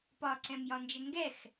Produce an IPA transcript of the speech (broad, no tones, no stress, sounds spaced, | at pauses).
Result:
p ɒ ǀ ɛ̃ m j ɒ n d͡ʒ ə ŋ ɡ ɛ x